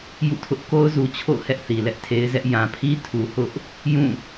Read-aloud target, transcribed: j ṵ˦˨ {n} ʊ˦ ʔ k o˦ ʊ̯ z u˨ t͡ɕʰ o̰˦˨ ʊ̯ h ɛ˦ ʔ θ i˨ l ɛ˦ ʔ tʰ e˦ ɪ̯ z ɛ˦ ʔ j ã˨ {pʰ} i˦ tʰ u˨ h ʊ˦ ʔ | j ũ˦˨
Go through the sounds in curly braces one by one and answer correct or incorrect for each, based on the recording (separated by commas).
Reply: incorrect, correct